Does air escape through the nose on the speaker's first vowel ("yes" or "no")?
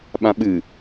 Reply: yes